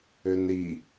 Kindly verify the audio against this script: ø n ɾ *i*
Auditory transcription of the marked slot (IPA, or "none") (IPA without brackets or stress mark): i